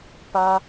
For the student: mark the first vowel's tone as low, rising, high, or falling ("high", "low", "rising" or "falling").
high